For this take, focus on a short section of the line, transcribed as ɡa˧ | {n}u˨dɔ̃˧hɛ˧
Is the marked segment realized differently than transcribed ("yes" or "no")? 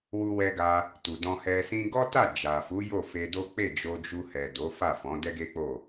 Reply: yes